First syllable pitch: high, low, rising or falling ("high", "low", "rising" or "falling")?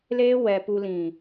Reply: high